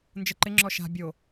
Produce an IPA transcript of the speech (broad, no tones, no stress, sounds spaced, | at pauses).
n d͡ʒ ə ǃ ɪ ŋ͡ǁ ɔ ʃ a̤ bʲ o